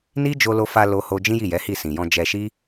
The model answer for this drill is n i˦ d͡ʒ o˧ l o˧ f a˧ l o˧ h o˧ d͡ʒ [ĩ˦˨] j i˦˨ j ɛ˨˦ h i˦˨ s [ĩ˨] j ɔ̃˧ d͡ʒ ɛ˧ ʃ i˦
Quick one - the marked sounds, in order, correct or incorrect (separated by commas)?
incorrect, correct